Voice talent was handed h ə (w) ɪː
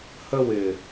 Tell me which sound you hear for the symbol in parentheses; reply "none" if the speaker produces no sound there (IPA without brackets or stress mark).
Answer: w